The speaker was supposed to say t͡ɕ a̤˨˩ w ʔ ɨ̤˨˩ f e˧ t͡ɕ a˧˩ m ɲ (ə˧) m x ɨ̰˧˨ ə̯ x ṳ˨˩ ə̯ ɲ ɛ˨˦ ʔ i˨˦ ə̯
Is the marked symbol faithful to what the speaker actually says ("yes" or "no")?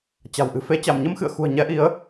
yes